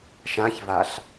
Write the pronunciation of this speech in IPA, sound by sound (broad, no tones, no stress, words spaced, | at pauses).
ʃãçvaɬ